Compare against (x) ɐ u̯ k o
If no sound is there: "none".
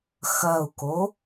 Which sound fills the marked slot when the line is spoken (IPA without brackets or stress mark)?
x